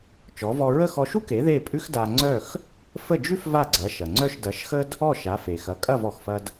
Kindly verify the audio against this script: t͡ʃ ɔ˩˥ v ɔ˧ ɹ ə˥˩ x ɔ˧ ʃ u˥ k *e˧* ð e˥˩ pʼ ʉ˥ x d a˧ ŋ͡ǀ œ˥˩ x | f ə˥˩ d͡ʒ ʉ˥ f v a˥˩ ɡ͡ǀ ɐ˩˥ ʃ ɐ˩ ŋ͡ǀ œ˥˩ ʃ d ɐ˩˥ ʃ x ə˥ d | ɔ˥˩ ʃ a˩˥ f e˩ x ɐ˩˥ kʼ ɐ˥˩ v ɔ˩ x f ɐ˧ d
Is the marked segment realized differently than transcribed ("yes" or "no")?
yes